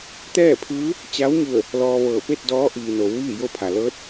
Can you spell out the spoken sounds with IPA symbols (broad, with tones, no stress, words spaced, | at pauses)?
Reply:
t̪ɛː˥˨pʰɯː˧˥ | t͡ɕa˧˥wɲu˧˩ə̯ | lɔː˧ʋɤː˧˩ pe˥˨t̚ dɔː˧˥ ʔiː˩no˩˧w ʋiː˥˨jo˥˨pʰa˩ lɤː˧˥t̚